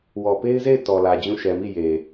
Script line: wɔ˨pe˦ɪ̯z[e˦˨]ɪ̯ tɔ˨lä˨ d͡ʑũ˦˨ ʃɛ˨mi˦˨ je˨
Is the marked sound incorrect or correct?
correct